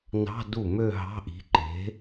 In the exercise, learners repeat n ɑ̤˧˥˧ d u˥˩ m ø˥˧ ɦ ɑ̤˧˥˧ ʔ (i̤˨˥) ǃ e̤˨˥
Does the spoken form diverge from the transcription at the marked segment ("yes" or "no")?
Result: no